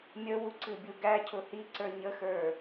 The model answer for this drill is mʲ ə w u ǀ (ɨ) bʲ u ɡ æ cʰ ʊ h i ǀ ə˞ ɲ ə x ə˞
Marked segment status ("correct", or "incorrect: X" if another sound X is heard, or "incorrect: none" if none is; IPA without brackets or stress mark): correct